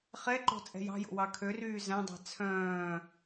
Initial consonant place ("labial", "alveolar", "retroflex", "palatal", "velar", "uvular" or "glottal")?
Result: uvular